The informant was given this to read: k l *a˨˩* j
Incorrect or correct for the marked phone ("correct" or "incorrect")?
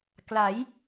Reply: incorrect